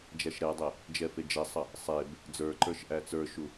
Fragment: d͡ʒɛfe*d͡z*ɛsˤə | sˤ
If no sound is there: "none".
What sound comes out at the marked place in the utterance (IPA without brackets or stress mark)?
d͡ʒ